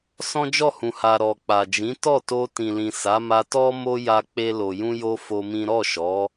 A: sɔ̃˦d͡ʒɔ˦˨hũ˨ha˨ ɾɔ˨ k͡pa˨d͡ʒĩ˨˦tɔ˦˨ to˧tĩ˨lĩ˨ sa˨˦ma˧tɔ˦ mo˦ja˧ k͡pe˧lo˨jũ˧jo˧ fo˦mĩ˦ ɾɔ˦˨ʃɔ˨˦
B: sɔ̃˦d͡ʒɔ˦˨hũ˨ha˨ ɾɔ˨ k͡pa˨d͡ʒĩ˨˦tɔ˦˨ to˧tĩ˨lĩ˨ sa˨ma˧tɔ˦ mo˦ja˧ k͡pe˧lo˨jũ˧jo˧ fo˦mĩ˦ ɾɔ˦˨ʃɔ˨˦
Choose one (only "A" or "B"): A